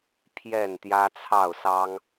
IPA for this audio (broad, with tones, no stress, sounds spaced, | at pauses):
pʰ j ɛ˥˨ n t̪ j ä˦ t͡sʰ ɑ˥˨ ʊ̯ s ɑ˦ ŋ